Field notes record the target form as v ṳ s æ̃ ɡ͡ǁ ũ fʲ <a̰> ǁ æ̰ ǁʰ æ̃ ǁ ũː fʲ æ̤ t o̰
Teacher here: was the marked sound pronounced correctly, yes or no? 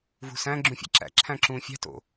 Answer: no